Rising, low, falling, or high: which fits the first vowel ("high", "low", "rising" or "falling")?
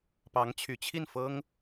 rising